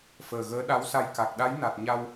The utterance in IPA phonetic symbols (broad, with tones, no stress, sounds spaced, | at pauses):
f əː˨˩ ɣ əː˧˥ ɗ a˧˥ w s a˧ j k a˨˩ k̚ ɗ a˧˥ j n a˨˩ t̚ ɲ a˧ w